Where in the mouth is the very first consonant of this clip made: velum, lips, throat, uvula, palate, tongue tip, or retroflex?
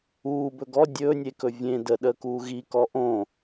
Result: lips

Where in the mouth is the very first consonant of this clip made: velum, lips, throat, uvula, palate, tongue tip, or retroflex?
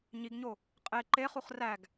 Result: palate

